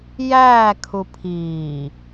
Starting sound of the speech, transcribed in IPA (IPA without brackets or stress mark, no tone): j